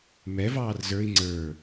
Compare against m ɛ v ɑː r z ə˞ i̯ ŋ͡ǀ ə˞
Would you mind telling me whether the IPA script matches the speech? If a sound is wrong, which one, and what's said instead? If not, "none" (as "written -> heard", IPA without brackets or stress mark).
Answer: none